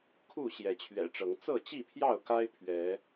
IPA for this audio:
kʰ u˥˨ ɕ j ɛ˨˦ t͡ɕʰ ɥ ɛ̰˨˩ ʈ͡ʂ ɤ˨˦ ŋ t͡s ɤ˥˨ t͡ɕ i˥˨ pʰ j ɑ˥˨ ʊ̯ k a˦ ɪ̯ pʰ ɥ ɛ˨˦

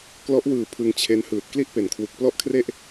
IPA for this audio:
k l ɔ˦˥ ʔ w ɯː˨˩ pʰ ɯ˧ ŋ t͡ɕʰ e˦˥ n h ɯː˨˩ t̚ k l i˥˩ ʔ p e˨˩ n kʰ w u˨˩ k̚ p l ɔ˥˩ ʔ kʰ r e˥˩ ʔ

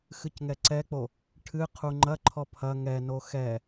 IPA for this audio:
x ɨ c ŋ ɛ ǀ ɛ k͡p o | ʈʰ ɨ qʰ u ŋ͡ǃ ɐ ǃʰ ɔ pʰ ɐ ŋ ɛ n o x ɛ

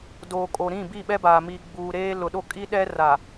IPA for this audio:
d oː˨ kʼ o˨ ɾ ĩ˦˨ b i˦˨ ɓ ɛ˦ b aː˨ m i˨ ɡ͡b uː˨ ɾ eː˦ l ʊ˨ ɗ o˦˨ kʼ i˦ ɗ ɛ˦ r a˨

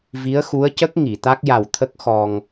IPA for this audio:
v i˧˥ ə̯ x u˧˥ ə̯ c ə˦˥ k̚ ŋ i˨˩˨ t̪ a˦˥ k̚ j a˨˩ w t̪ʰ ə˦˥ k̚ x ɔ˧ ŋ

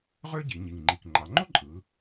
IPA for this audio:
ʁ ø˥ ɟ i˩˧ ɲ i˨˩ ŋ ŋ͡ǃ i˨˩ k ŋ͡ǃ ɑ˩˧ ŋ͡ǃ o˥ ǃʼ ɯ˩˧

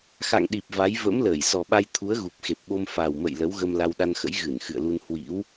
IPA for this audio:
x a̰˧˨ ŋ ɗ i˨˩ p̚ v a˨˦ j v ə̰˧˥ m l əː˧˩ j s ɔ˨˩ ɓ a˧ j t̪ʰ u˨˦ ə̯ ɣ u˨˩ p̚ x e˨˩ p̚ ɓ o˧ m f a˨˩ w m ə̰˧˨ j l ə˨˦ w ɣ ə˧ m l a˧ w ɗ a˧ n x ə̰˧˥ j ɣ ɨ˧˩ n x ɨ̰˧˨ ə̯ l u˧ n h w ḭ˧˥ w

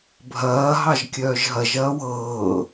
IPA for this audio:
bʱ ɐː ɦ ɑ ʒ kʲ œː ʒ ɦ ɐ ʒ ɐː w ɤː

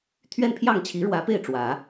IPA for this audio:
t̪ʰ ɥ ɛ˥˧ n pʰ j ɑ˥˩ ŋ t͡ɕʰ i˧˥ ɻ w ä˧˥ p e˥˩ ɪ̯ ʈ͡ʂ w ä˨˩˦

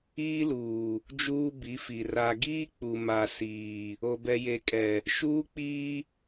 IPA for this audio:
iː˦ l uː˨ | d͡ʒ uː˦ b i˨˦ f i˨ r a˨ ɡ iː˦ k͡p u˨ m a˨ s iː˨ | o˨ b ɛ˨ j e˨ kʼ ɛ˨ | ʃ uː˦ k͡p iː˦

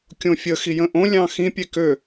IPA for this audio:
kʲ õ fʲ ə x i j ə̃ ʔ õ lʲ ɑ̃ x ĩ pʲ e k ø

